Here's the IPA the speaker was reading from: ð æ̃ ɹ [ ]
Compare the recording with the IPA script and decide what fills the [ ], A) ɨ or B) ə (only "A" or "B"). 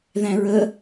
B